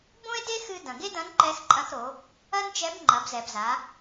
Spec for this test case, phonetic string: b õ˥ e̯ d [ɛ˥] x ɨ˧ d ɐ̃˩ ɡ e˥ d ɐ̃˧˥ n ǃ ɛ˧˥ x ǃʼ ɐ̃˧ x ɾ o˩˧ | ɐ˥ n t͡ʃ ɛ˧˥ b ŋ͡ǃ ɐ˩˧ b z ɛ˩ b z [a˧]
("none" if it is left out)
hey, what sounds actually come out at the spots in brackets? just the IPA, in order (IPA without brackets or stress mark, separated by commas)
e˥, a˩˧